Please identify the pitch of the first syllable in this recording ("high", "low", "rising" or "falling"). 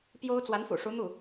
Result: high